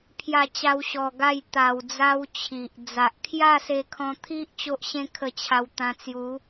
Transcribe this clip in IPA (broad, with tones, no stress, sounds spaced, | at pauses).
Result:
pʰ j a˥˧ t͡ɕ a˦ w ɕ ɔ˧ ɡ a˥˧ j t̪ a˧ w d͡z a˦ w t͡ɕʰ i˨ ʔ d͡z a˨ ʔ kʰ j a˥˧ s e˧ kʰ ɔ̃˧ t̪ʰ i˦ ʔ t͡ɕ o˦ ʔ ɕ ẽ˦ kʰ ə˧ t͡ɕʰ a˧ w t̪ ã˧ t͡s j u˨˦